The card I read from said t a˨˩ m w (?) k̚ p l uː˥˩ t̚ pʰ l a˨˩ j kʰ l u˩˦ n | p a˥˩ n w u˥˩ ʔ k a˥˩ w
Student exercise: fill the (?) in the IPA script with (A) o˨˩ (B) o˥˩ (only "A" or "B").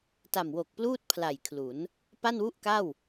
A